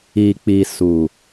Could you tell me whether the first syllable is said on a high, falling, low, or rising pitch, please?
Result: low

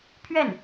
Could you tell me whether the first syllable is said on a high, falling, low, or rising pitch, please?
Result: falling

